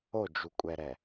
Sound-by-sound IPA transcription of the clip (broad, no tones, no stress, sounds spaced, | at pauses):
o d͡ʒ u kʷʼ ɛ ɾ ɛ